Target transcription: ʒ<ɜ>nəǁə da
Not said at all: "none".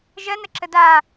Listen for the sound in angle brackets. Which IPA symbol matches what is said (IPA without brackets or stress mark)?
ɜ